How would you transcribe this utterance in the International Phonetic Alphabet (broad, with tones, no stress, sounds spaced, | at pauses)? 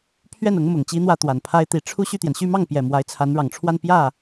pʰ ɥ ɛ˥˩ n ʊ˧˥ ŋ m ʊ˨˩ ŋ t͡ɕ i˥ n̪ w ä˥˩ t̪ w a˨˩ n pʰ a˥ ɪ̯ t̪ i˧˥ ʈ͡ʂʰ u˥˧ ɕ y˥˩ t̪ j ɛ˩ n ɕ y˥˧ m ɑ˥˩ ŋ p j ɛ˨˩ m w a˧˥ ɪ̯ t͡sʰ a˧˥ n ɻ ɑ˨˩ ŋ ʈ͡ʂʰ w a˥˧ n p j ä˥˩